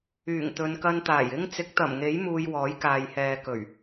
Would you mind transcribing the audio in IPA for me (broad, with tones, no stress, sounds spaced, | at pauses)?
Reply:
yː˨˩ ŋ t̪ ɵ˨˧ n k ɐ˧ n t̪ aː˨˩ j ɪ˥ ŋ t͡s ɪ˨˥ k̚ t̪ ɐ˨˩ m ŋ e˨˥ j m uː˧ j w ɔː˨˥ j k aː˨ j h ɛː˨ k ɵ˨˩ ɥ